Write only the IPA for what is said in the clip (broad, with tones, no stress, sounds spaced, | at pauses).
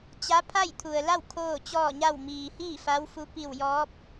t͡ɕ a˧˥ pʰ a˥˨ j t̪ʰ u˩ ə̯ l a˥˨ w kʰ oː˥˨ t͡ɕ ɔː˥˨ ɲ a˥˨ w m iː˩ h iː˥˨ f a˧˥ w f u˧˥ p i˧˩ w j ɔː˧˥ p̚